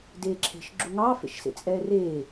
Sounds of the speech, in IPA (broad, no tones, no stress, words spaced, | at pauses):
deːǁʰe̤ʃ ɡ͡ǁuŋɑ fḛʃsḛt͡sʼɛːreː